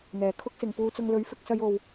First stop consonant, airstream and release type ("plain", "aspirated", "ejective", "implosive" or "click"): aspirated